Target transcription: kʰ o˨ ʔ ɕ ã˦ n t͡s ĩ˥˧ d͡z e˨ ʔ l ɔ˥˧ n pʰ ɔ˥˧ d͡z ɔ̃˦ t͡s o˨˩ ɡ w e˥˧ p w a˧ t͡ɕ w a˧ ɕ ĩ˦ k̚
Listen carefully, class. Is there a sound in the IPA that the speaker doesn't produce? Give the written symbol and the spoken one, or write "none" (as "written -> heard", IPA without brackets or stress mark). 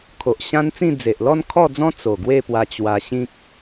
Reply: pʰ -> kʰ